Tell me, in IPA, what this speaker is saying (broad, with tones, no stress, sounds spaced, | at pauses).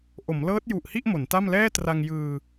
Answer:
ʔ o˩˦ m l ɤː˦˥ t̚ j u˨˩ ʔ h i˥˩ ʔ m o˩˦ n t a˥˩ m l ɛː˥˩ t r a˧ ŋ j ɯː˧